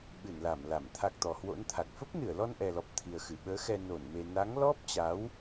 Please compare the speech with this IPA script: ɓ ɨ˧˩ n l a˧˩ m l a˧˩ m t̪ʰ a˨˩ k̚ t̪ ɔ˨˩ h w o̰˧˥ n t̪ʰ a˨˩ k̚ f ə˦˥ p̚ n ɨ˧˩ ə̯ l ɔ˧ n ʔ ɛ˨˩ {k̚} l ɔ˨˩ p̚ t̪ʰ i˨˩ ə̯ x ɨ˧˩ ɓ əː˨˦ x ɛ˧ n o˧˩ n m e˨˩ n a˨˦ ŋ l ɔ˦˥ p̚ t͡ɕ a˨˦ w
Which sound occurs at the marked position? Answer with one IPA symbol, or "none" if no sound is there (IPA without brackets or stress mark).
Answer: none